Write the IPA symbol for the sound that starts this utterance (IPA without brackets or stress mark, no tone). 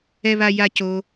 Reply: ɛ